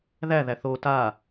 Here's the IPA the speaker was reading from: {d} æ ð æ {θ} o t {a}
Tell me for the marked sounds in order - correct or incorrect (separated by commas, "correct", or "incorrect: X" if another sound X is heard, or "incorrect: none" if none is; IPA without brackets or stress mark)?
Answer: incorrect: ð, correct, correct